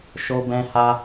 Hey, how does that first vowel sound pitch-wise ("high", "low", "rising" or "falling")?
high